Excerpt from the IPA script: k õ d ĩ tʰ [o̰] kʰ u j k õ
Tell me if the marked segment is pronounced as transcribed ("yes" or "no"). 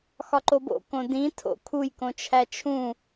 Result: yes